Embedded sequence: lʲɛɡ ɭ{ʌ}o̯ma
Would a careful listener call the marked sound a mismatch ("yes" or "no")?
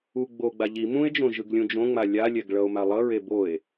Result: no